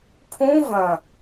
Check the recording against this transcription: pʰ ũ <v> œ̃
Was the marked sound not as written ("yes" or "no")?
no